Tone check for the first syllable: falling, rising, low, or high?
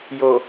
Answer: low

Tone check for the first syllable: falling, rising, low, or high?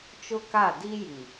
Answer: high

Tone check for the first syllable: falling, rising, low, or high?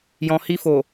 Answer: low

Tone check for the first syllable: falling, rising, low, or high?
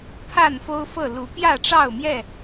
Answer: falling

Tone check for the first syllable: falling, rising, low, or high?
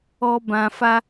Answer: low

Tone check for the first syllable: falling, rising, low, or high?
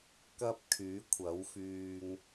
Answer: high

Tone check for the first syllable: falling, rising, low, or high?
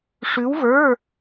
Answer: rising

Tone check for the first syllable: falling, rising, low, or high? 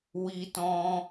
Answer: high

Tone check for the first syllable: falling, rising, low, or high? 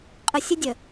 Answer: low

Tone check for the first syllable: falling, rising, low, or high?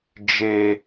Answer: high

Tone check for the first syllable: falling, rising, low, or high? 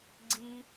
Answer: high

